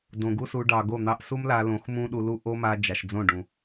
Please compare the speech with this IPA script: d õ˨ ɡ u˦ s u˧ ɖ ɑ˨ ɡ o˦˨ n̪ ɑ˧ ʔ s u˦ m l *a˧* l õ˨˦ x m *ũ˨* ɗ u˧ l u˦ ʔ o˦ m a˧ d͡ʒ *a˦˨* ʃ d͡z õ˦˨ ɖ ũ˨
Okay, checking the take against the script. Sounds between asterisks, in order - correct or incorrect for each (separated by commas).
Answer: correct, incorrect, incorrect